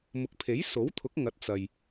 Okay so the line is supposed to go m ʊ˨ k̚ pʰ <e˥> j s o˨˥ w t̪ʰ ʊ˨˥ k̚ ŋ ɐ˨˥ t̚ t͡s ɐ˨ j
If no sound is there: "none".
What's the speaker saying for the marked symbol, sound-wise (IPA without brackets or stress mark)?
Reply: e˨˥